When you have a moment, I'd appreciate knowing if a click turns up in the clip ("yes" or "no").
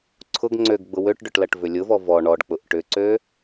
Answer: yes